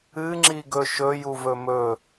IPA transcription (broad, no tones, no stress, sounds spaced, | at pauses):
ɨ ŋ͡ǁ i ɡ ɵ ʃ ɵ j u v ɵ m ɵ